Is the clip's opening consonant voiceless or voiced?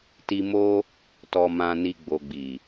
voiceless